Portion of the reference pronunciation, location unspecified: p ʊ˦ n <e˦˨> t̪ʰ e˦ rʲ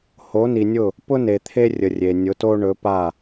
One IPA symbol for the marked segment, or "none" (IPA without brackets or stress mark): e˨